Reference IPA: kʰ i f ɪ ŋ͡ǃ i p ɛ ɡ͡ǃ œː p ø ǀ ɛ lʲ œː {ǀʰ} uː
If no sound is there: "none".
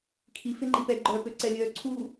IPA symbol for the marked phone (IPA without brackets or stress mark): ǀʰ